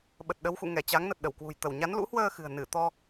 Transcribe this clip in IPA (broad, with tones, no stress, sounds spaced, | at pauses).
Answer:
ɓ ə˨˩ t̚ ɗ ə˨˦ w x ṵ˧˨ ŋ ɛ˧˩ t͡ɕ a˨˦ ŋ n ə˨˩ t̚ ɗ ə˧˩ w k w ṳ˨˩ j t̪ ə˧˩ w ɲ a˨˦ n l ṵ˧˥ h w əː˧ x ɨ̤˨˩ ə̯ n ɨ˧˩ t̪ ɔ˧